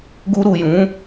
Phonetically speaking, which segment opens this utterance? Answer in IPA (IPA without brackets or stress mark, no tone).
ɡ